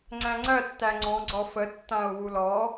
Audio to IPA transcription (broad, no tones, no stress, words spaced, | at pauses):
ŋ͡ǀæ̃ŋ͡ǀɜ tːæŋ͡ǀɔ̃ ɡ͡ǀɔfə tːãʊ̯wulɔ